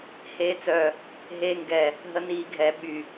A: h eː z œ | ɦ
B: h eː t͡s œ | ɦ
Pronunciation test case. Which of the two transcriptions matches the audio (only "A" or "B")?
B